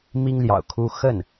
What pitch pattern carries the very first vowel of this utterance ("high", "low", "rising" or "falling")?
high